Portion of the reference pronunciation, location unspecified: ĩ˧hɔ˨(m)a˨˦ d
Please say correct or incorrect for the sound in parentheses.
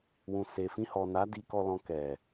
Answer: incorrect